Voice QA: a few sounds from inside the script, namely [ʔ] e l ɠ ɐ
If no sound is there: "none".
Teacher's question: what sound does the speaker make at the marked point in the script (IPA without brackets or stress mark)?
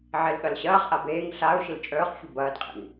ʕ